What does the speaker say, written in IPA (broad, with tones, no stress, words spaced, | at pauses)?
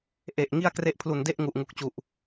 ʔe˨˩ʔ ŋi˥˩a̯kre˥˩ʔpʰlu˨˩nde˥˩ʔ ŋu˨˩ʔŋu˨˩k̚t͡ɕu˨˩ʔ